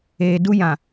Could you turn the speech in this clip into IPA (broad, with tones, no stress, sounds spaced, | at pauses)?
eː˨ d u˦ j ã˨